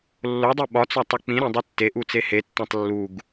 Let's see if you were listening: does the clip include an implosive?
yes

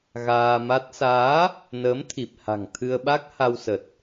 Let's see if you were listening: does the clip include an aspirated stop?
yes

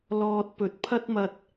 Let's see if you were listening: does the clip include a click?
no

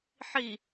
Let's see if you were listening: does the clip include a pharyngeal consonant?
yes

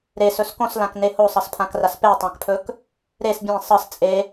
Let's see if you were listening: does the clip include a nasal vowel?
yes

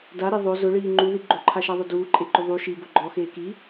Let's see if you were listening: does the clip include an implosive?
no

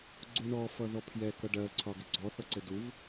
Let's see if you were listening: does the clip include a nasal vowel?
no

